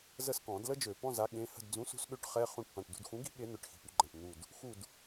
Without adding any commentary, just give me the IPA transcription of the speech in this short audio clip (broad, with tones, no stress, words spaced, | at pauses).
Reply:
zə˦˨skɔ̃˨˩˦dlə˥ d͡ʒø˨˩˦pɔ̃˧˥˧za˨˥ ɠẽ˩˧˩ hə̤˦˨dd͡zũ˨˥sṳ˨˥sɠø˨˥ʈ χɛ˧˥˧ χũ˦˨ʈ pã˩˧˩ʈdṳ˦˨dxũ˨˥ɡi̤˥ ɠe˨˥n̪œ˩˧˩ʈ xi̤˩˧˩py˨˩˦ɡ͡ǃã˩˧˩ʈ n̪u˦˨d | xu˦˨d